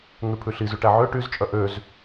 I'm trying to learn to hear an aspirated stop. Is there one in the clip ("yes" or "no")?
yes